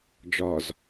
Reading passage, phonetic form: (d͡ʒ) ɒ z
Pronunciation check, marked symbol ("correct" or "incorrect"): correct